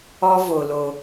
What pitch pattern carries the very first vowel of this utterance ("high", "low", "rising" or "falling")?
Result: high